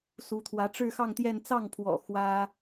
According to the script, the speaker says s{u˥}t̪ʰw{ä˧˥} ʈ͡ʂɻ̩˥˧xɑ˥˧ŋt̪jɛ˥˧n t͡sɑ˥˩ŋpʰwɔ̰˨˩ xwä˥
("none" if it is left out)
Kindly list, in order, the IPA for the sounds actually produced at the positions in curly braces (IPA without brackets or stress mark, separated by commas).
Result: u˧˥, ä˧˥